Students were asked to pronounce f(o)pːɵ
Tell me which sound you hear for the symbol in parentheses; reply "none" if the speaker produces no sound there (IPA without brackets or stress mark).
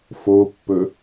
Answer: o